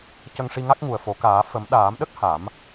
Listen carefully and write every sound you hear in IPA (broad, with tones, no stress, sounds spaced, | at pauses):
c ə˧ ŋ ʂ i˧ ŋ a˦˥ k̚ ŋ u˨˩ ə̯ f o˨˩˦ k aː˨˩˦ f ə˨˩˦ m ɗ aː˨˩˦ m ɗ ə˦˥ k̚ h a˨˩˦ m